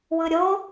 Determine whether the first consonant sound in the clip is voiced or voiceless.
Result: voiced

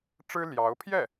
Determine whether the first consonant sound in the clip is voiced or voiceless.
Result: voiceless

